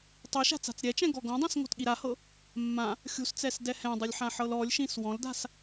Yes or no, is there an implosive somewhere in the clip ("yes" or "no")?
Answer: yes